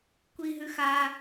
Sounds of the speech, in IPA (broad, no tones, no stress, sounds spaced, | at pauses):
kʷ i ɦ ʉ x a